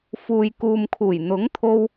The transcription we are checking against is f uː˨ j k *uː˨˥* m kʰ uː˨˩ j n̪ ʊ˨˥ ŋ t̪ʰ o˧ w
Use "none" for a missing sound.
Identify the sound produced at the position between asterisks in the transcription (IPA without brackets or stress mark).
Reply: uː˨